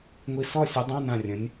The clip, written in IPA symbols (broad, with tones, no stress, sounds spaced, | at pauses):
ŋʷ i˧ s ɔ˥˧ sʲ œ˨˥ dˤ ã˧˥˧ n ã˧˩ rʲ ə̃˩˧ nʲ